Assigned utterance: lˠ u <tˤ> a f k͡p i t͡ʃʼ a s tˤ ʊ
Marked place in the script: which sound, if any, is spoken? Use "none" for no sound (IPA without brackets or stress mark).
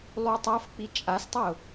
tˤ